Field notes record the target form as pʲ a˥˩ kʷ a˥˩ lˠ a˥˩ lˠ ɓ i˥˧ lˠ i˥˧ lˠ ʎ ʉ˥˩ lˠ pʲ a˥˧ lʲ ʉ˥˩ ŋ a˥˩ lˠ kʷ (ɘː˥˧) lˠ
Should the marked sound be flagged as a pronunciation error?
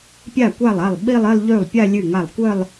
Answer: yes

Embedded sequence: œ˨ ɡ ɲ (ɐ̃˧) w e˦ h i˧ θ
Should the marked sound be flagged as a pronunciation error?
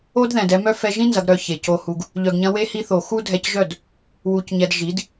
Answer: no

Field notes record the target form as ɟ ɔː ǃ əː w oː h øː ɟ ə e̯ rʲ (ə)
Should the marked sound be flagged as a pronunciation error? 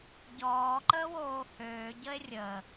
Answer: no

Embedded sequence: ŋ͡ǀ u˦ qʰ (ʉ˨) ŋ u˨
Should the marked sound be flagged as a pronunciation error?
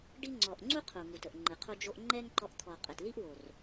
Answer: yes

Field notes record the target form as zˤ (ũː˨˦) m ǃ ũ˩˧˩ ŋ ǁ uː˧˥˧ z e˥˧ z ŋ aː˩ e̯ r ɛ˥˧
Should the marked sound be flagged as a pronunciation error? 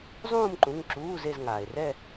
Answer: yes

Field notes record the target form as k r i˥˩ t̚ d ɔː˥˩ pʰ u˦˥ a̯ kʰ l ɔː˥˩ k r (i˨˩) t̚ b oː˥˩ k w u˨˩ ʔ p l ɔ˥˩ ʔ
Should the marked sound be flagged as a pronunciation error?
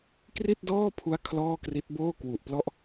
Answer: yes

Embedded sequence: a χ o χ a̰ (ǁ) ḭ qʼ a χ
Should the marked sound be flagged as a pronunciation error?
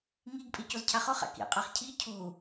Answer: yes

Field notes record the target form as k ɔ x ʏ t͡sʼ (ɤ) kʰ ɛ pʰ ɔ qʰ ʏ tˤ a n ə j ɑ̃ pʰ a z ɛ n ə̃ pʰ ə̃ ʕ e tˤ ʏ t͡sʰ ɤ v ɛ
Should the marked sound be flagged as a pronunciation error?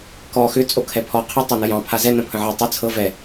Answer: yes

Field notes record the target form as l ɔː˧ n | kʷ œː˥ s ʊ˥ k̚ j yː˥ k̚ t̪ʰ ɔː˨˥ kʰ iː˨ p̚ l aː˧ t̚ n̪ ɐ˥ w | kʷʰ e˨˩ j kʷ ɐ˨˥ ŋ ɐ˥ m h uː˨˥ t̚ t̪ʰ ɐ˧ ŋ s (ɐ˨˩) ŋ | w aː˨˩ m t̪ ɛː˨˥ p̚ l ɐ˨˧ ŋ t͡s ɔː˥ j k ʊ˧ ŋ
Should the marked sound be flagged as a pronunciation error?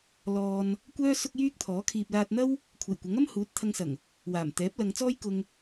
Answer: no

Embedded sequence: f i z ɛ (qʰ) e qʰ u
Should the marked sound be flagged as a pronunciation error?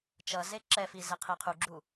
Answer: no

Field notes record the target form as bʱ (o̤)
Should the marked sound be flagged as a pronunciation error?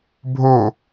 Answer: yes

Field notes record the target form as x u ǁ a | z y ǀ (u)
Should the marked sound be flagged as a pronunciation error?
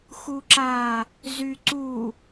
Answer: no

